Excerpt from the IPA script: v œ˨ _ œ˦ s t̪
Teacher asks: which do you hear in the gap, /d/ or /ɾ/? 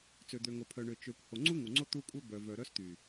ɾ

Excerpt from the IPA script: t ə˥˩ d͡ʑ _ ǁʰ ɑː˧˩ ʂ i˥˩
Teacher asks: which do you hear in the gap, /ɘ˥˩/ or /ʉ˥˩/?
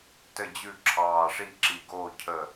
ʉ˥˩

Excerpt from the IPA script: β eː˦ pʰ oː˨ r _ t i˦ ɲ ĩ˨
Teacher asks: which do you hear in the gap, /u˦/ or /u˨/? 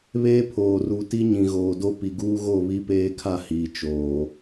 u˨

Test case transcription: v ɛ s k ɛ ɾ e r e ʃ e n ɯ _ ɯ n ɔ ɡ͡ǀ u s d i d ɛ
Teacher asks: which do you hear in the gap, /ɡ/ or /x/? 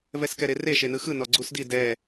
x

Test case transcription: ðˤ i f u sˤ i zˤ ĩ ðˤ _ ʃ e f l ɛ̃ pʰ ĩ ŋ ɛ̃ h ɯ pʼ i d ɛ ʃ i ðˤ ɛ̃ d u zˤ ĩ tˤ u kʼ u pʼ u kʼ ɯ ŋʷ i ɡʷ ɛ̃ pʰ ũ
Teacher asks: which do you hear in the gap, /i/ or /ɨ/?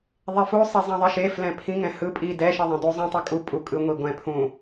i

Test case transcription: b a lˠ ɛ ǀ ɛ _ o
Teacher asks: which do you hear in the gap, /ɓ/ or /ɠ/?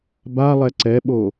ɓ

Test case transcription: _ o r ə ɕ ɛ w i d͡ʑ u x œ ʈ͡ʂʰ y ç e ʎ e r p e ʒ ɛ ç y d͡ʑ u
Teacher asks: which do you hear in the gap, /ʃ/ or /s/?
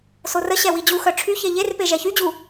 s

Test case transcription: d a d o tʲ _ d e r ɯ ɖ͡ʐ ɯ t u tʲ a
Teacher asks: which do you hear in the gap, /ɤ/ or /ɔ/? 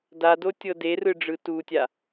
ɤ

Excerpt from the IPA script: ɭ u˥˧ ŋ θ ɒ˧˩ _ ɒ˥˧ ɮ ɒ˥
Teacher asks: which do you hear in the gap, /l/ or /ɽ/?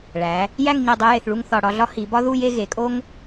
ɽ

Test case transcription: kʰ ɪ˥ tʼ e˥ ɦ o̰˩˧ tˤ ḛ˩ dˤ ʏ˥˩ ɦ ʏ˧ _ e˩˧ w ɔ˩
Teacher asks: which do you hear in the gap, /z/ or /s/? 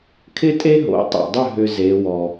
z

